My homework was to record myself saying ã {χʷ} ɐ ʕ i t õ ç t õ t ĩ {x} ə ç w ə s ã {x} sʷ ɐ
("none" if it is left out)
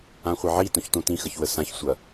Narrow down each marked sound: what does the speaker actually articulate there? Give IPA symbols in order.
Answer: χʷ, x, ç

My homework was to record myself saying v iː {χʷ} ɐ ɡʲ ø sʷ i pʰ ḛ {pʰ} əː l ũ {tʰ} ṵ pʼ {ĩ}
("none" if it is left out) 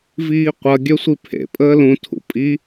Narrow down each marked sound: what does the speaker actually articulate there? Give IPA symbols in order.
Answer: qʷ, pʼ, tʰ, i

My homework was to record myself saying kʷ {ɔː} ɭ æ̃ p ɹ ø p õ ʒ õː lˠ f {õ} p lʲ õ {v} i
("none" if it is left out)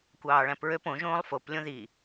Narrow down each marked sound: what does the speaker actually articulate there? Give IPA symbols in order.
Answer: ɑː, o, ð

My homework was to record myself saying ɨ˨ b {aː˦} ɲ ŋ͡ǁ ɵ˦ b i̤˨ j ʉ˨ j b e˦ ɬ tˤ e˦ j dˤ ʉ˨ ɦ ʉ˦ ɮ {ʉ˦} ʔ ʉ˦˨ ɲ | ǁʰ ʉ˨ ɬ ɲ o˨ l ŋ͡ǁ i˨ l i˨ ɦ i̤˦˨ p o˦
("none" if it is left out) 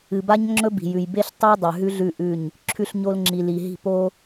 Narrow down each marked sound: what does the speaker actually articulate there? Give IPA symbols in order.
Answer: a˦, ʉ˦˨

